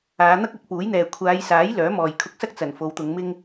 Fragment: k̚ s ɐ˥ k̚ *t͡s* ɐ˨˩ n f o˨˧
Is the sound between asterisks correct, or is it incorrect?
correct